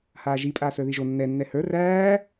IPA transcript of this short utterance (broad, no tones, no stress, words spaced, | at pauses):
haːʒi pʼaːsə˞ðiʒo nːɛ nːɛhə˞ ræː